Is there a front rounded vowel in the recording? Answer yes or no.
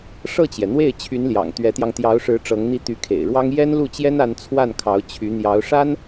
yes